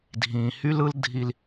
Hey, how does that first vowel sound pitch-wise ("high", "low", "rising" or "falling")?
low